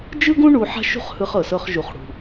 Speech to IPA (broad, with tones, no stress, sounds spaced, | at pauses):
d͡ʒ ɯ˥ ɡ ũ˥ ɳ u˧ ħ a̤˥ ʃ ṳ˥ χ h ɯ˧ χ ɤ˩ s ɤ˧ χ ʒ u˩ χ ɽ ṳ˩